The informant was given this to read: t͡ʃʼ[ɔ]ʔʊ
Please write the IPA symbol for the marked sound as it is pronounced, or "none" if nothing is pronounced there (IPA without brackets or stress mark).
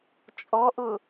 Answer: ɔ